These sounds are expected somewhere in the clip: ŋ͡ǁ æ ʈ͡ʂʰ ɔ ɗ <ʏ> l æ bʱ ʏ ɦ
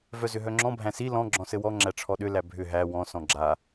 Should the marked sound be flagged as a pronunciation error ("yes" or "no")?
no